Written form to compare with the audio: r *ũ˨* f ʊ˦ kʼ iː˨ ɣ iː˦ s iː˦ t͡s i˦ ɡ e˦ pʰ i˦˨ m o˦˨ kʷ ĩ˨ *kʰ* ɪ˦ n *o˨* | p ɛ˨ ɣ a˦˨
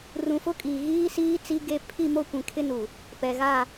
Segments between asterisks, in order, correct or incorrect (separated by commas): correct, correct, incorrect